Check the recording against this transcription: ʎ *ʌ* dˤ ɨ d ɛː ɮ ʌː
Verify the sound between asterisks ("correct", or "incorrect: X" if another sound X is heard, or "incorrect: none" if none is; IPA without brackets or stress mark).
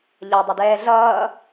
correct